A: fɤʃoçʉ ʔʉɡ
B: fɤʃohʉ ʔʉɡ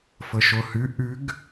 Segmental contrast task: B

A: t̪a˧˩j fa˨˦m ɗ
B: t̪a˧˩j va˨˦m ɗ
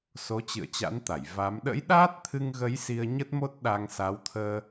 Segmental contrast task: B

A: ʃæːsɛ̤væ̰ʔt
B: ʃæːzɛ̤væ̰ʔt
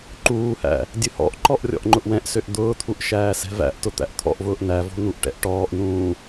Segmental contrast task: A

